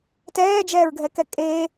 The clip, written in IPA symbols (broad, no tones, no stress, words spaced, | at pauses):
tɛːd͡ʒɛːɹɡʱɛkɛ kʼeː